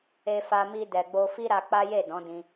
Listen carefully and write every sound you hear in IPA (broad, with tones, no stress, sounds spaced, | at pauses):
e˧ f a˧ m i˧ d ɛ˨ ɡ͡b o˧ f i˦ ɾ a˧ k͡p a˦ j e˦˨ d ɔ̃˨˦ d ĩ˧